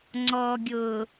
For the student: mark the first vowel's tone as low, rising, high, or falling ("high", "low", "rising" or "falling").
low